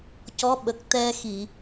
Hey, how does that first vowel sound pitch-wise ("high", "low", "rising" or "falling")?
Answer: rising